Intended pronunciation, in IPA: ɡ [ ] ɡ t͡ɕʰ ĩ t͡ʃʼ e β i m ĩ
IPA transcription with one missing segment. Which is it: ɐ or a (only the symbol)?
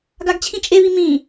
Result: a